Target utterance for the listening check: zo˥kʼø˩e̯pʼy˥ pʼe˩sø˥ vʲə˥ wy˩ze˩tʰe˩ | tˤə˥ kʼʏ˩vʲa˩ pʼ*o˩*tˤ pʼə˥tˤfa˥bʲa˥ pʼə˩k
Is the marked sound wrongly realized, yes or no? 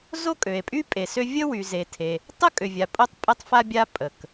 yes